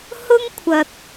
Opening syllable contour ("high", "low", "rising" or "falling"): high